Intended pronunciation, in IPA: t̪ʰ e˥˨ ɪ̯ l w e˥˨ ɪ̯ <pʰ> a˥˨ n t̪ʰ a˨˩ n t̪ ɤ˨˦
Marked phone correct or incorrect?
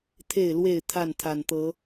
incorrect